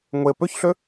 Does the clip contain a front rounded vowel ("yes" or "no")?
yes